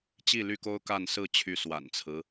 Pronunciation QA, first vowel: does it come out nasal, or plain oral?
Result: oral